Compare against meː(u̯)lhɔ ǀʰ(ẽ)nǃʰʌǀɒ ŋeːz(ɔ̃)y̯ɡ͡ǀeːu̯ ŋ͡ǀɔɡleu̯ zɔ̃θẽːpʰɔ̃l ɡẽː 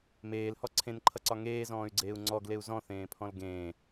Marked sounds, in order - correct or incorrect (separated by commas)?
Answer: incorrect, correct, incorrect